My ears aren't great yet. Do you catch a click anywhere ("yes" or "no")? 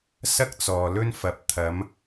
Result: no